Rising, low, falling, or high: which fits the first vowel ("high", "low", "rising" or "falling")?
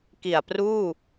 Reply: low